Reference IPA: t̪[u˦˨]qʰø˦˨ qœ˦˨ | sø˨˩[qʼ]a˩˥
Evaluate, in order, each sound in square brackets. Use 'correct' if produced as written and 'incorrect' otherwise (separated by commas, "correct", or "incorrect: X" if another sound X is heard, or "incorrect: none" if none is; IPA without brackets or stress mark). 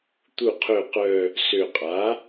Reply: correct, correct